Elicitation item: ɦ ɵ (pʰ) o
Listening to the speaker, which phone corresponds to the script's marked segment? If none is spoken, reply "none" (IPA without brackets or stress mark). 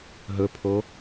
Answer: pʰ